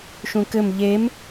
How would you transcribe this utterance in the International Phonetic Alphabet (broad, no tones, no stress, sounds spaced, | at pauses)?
ʃ ũ k ɘ m ʎ e m